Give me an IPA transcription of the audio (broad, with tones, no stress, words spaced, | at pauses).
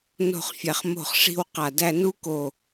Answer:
no̤˥˧χfʲæ˧χ mo̤˥˧χ ʂi̤˥˧wqa˧˩dæ˥˧ nu˥ko˧˩